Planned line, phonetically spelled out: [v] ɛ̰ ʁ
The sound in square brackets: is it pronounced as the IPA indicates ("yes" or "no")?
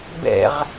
no